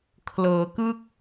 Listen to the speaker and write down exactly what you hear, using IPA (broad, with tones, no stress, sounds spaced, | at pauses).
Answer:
kʰ l ɤː˩˦ k ɯ˥˩ k̚